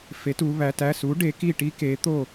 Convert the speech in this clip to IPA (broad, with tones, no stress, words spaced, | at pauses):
fe˩˥tu˩˧ βæ˩˧tæ˩˧˩su˩˥ ɖe˩˥ki˥˩ʈi˥ ke˩˥t̪o˥˩